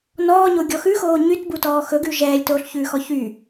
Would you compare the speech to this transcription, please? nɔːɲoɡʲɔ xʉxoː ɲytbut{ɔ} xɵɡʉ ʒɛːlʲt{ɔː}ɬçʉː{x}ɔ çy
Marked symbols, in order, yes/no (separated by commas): no, no, yes